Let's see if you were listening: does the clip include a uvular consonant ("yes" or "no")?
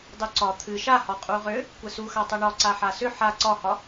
yes